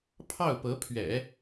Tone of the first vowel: falling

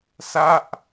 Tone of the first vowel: falling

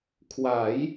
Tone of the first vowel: rising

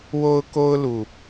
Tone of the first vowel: high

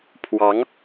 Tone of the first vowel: rising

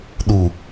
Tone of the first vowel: low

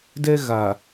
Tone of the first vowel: high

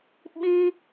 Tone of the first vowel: high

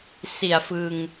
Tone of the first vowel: low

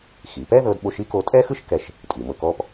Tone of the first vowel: low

